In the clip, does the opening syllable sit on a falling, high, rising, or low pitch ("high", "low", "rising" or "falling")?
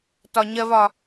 high